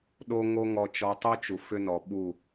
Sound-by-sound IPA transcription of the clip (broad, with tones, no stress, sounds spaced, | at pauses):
ɗ o˦ ŋ o˦ ŋ ɔ˦ t͡ʃ ɔ˦ tˤ o˦ t͡ʃ u˨ f ʏ˦ n ɔ˨ ɓ u˦˨